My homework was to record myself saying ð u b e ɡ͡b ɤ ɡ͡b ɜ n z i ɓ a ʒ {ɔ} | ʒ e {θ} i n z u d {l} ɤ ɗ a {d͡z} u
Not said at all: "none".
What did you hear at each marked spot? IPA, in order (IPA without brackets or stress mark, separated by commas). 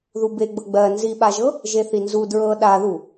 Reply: ɤ, θ, ɹ, ð